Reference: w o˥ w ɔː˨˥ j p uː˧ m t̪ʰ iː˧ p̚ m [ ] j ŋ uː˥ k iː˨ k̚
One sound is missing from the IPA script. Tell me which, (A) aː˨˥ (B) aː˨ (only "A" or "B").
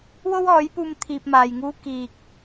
B